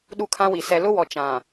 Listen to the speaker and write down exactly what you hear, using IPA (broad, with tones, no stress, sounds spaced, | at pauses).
ɗ u˦ kʰ ã˦ w i˨ s ɛ˨ l ʊ˦ w ɔ˨ t͡ʃ ã˨